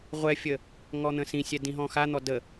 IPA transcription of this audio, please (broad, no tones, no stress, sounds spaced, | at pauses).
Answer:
ʁʷ ɛ fʲ ə | ŋ ɔ n̪ ə̃ s ĩ sʲ ɛ d ĩ ɦ ɔ̃ x a n̪ ɔ d ə